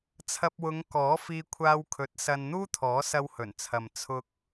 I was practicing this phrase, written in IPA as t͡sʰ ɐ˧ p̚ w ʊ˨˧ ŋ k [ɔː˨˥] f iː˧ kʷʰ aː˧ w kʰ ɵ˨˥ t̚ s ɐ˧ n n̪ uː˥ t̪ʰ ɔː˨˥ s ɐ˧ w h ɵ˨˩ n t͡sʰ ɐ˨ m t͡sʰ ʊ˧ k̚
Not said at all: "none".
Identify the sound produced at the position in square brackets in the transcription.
ɔː˨˥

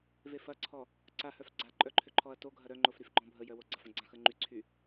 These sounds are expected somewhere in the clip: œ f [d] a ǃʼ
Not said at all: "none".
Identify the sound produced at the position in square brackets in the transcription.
ɡ͡ǀ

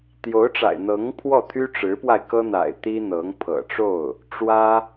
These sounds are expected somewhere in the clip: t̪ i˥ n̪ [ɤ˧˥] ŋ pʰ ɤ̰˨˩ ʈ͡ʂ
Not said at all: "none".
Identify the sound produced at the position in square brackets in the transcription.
ɤ˧˥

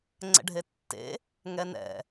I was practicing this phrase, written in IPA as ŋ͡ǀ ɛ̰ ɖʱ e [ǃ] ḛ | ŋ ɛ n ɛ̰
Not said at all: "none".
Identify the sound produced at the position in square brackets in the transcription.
tː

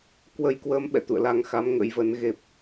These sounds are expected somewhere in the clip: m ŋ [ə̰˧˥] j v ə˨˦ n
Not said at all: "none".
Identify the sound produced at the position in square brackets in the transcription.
ə̰˧˥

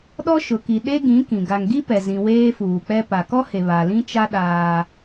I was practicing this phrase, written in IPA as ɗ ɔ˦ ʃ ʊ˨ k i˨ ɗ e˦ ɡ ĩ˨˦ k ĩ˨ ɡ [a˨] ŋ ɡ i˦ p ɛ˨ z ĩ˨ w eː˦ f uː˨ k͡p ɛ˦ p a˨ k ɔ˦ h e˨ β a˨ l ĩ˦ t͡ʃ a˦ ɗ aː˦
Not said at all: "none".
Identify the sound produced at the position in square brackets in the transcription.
a˨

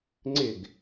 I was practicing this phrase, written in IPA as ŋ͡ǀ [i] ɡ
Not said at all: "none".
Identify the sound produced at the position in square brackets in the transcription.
ɪ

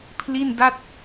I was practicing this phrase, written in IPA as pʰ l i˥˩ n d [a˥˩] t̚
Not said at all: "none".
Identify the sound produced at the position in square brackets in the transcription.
a˥˩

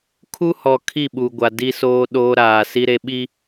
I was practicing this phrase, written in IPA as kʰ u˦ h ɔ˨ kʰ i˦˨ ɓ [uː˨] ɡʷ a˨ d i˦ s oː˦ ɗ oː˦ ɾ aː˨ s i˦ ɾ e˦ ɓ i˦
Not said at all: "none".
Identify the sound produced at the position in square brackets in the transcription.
u˨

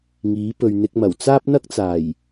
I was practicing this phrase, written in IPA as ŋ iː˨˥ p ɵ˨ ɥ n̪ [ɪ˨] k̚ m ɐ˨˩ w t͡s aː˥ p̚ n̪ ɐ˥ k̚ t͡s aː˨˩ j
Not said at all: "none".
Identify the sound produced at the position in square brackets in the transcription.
ɪ˧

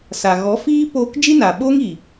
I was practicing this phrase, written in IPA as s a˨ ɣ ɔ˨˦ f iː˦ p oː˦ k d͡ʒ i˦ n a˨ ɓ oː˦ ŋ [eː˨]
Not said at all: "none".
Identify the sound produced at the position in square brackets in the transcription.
iː˨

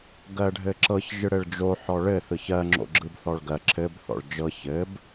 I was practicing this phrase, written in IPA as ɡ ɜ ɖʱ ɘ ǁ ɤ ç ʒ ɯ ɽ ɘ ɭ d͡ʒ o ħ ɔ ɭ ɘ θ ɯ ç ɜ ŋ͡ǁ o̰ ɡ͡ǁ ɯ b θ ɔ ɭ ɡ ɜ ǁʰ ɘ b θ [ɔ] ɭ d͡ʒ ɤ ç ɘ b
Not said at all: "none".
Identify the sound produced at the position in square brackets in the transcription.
ɔ̰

